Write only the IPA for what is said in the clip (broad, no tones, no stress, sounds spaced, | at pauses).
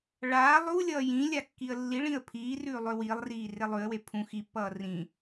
ɭ aː lˠ u lʲ ʌː j ĩ lʲ a kː i ə̯ lː i ɭ ĩ ə̯ pʰ iː r ʉː lˠ ø w iː lˠ r iː r e lˠ ʉ ə̯ w e pʰ ũ x i pː ʌː r ĩ